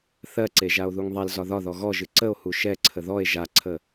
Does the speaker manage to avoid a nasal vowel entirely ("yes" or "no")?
yes